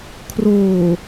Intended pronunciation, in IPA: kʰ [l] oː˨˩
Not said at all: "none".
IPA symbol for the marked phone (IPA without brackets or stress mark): r